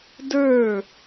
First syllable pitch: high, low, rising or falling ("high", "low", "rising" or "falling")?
falling